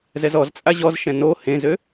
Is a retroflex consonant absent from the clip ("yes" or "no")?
yes